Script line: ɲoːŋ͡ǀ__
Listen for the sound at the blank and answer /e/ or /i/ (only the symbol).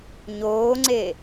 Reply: e